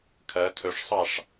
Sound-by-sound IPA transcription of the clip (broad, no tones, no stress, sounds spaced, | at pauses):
kʰ ɜ tʰ ɵ ʂ sˤ ɑ ʂ